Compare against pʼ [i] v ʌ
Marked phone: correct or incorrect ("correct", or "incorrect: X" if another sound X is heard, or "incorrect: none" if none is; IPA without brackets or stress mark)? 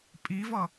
correct